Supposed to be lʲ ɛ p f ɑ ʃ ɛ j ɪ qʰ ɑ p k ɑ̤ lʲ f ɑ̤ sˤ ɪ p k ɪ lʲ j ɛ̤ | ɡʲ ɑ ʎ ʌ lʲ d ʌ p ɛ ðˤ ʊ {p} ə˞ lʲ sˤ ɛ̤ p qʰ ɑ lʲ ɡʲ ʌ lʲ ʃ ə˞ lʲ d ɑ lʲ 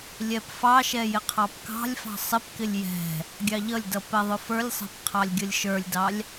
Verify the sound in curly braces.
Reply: incorrect: f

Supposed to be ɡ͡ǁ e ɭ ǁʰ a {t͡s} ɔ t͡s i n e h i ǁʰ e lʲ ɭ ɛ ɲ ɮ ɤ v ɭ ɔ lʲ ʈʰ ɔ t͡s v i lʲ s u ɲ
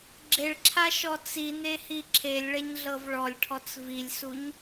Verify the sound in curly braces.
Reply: incorrect: ʃ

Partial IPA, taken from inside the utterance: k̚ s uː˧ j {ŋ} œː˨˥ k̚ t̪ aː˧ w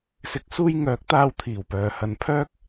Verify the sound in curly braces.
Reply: correct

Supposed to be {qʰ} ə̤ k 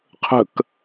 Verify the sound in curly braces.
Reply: correct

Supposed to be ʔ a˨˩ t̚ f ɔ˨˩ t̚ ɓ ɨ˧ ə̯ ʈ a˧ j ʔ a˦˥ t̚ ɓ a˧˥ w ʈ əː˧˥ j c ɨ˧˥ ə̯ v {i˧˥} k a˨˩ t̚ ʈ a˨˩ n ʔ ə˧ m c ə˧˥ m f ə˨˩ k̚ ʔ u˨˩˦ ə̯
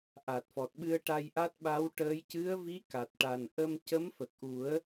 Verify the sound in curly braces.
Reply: correct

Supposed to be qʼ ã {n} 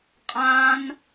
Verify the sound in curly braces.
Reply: correct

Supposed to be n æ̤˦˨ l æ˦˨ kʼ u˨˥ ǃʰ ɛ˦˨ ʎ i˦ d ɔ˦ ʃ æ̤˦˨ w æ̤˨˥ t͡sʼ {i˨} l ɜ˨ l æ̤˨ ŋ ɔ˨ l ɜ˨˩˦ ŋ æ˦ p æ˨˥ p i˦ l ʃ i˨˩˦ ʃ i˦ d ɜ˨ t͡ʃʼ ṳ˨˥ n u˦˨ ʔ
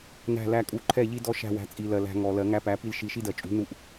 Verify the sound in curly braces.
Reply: correct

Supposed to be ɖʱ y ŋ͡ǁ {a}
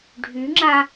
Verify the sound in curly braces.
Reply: correct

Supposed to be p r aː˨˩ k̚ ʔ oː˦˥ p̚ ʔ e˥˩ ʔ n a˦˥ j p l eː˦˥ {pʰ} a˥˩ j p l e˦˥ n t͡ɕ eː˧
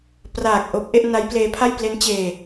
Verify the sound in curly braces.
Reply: correct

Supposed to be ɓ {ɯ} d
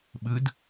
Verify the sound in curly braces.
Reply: correct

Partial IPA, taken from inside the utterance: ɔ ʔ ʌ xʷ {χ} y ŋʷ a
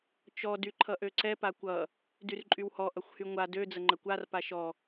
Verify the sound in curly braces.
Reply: incorrect: h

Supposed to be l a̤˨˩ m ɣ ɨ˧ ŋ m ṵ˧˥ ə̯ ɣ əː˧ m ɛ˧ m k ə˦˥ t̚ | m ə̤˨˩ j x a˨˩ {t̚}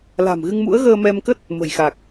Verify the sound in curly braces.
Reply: incorrect: k̚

